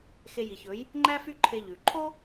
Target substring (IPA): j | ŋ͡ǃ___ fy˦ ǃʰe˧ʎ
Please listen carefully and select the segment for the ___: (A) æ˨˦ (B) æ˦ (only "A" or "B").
B